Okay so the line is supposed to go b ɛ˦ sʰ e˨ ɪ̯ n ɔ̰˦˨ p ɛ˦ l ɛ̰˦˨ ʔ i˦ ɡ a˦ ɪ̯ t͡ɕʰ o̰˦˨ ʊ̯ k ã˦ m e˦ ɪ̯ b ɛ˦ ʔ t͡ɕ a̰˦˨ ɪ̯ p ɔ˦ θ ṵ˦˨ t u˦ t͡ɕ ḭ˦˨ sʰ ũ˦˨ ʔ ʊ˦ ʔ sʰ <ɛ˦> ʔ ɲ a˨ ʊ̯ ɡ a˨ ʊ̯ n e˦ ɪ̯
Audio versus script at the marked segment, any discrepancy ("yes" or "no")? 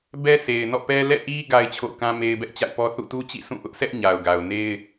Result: no